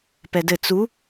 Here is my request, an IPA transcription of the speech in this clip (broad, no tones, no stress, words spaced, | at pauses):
pɛdɘ t͡su